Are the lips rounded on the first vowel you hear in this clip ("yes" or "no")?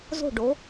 yes